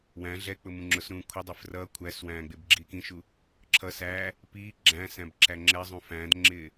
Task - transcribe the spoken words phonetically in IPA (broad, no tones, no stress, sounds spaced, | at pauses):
w æ̃ ɮ ɛ k͡p ʊ m ũ ŋ͡ǁ ʊ s ɾ ũː kʷʰ ə dˤ ɪ f r ʌː kʷʰ æ s w æ̃ː ɡ͡b ɪː b ɡ͡ǁ iː k ĩ ʃ u | ǁʰ ʌ s æ | p iː ɡ͡ǁ æ̃ s æ̃ b ǁ æ ŋ͡ǁ ɛ zˤ ũ f æ̃ː d ŋ͡ǁ ɪː